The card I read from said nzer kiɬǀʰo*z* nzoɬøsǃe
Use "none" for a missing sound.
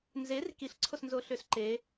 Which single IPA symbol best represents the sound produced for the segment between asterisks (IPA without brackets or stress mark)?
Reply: s